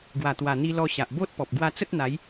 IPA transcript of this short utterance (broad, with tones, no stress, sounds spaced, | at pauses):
ɡ w a˨˩ t̪ w a˨˩ n̪ i˧ l ɔ˧ ɕ a˨ ʔ b o˦ t̚ p ɔ˨ p̚ ɡ w a˧ t͡s ə˦ t̚ n̪ a˨˦ j